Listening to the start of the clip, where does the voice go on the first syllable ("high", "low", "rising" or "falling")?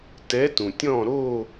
rising